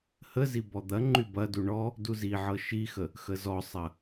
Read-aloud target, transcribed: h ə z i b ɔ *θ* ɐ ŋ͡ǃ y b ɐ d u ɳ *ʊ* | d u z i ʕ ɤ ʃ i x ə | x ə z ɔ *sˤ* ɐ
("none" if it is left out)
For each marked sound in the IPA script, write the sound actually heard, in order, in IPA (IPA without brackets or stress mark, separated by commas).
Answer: d̪, ɔ, sˤ